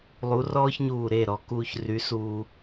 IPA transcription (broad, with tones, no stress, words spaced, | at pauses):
lˠu˨˥rɔː˥çɲuː˧˩ ɾe˥˩ɾɔ˩˧ kuː˧çry˨˥suː˧